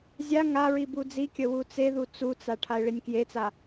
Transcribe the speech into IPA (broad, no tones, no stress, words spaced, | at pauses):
zʲa ŋaɹi bud͡zikʲə wut͡seðu t͡sut͡sa ʈʰaɪ̯ɭinʲkjet͡sa